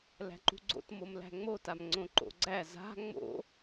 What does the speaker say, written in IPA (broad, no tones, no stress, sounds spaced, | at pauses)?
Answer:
l æ̤ ǃ ṳ ɡ͡ǀ o̰ t m o m l æ̤ ŋ͡m o t a m ŋ͡ǀ õ ǃ o̰ ɡ͡ǀ æ z a̤ ŋ͡m o̰